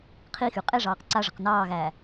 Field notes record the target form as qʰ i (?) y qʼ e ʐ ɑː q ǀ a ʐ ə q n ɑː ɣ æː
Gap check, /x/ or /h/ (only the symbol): x